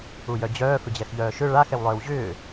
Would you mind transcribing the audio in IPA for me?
u j œ d͡ʑ œː f ʏ d͡ʑ ɛ x ʎ œː ʃ ʏ ɭ a x ɛ w lˠ œː w ʑ ʏː

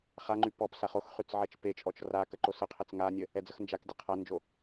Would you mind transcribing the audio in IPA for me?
χ a ŋ͡ǃ y p ɔ p s a χ o x χ y t͡s ʕ ɛ t͡ʃ p e t͡ʃʼ ɔ t͡ʃ r a k ə ǃ o s ə qʰ e t͡s ŋ a nʲ ə | ɛ d͡z ə x n d͡ʒ a k dʲ ə qʰ a n d͡ʒ o

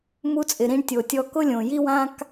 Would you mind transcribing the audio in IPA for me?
m u˧ t͡sʼ ɪ˩ ɾ ĩ˧ ɳ tʲ o˩ tʲ ɔ˧ k ʊ˥ lʲ õ˩ j i˥ w ã˥ k

